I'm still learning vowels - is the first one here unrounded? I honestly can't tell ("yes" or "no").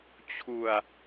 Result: no